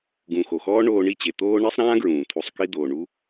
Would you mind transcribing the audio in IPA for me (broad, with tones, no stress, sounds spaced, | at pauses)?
ɡ ũ˨ x o˨ x ɔː˦ ɳ oː˧ ɳ i˦˨ t͡ɕ e˨ t̪ oː˦ ɳ i˦ sˤ ɾ ãː˦ ɡ ɹ ũː˨ t̪ʰ u˨ sˤ k i˧ d̪ oː˨ ɳ u˦